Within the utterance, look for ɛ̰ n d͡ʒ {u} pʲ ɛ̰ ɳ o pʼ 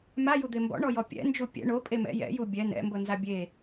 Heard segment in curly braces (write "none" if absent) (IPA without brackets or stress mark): u